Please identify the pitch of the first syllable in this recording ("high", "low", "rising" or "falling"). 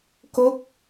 falling